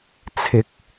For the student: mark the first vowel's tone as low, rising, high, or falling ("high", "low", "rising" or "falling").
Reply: low